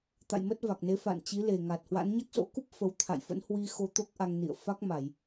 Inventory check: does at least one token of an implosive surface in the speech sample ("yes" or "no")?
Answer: no